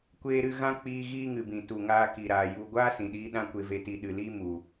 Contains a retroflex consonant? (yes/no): no